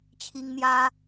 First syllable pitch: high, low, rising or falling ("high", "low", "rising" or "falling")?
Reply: high